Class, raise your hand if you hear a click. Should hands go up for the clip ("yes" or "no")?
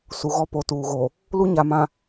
no